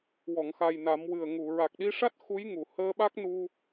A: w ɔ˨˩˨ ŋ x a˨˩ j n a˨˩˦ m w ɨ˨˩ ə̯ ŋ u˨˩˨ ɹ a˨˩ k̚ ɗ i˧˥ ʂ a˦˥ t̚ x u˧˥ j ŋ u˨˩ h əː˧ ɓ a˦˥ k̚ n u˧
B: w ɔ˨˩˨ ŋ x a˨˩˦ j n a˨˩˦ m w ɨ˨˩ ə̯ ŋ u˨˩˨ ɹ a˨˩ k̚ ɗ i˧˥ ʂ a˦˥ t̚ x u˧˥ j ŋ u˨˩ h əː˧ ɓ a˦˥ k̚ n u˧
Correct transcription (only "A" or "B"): A